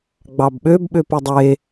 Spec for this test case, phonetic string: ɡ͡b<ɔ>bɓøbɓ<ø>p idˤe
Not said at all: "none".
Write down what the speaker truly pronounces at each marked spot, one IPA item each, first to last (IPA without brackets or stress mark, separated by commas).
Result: ɑ, ø